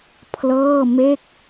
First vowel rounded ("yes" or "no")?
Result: no